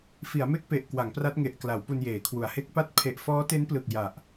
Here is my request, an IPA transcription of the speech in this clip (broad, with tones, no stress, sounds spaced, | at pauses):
f i˩˦ a̯ m e˥˩ k̚ p e˨˩ ʔ k w a˩˦ ŋ p r a˦˥ t̚ ŋ e˨˩ ʔ k l a˩˦ w p u˧ n j eː˩˦ kʰ w u˩˦ a̯ h e˦˥ k̚ p a˥˩ t̚ pʰ e˨˩ ʔ f ɔː˦˥ t e˦˥ n p l ɯ˨˩ k̚ j a˨˩ ʔ